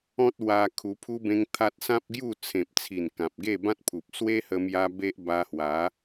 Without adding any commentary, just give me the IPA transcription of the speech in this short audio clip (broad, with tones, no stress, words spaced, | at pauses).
ɔ̃˦t̚wa˧ kʰu˧pʰu˦bẽ˦ŋt̪ʰa˦t̚ sã˦p̚ɡju˥˧ t͡sʰẽ˨p̚t͡sʰi˨˩n kã˨p̚ɡe˥˧bã˦t̚pʰu˨p̚ swe˦hə˧mja˧ be˦ʔba˧hwa˨˦